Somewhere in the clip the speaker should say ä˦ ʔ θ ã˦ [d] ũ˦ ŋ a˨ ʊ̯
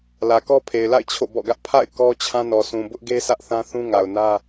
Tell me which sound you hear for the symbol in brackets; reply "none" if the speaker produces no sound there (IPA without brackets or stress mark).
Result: θ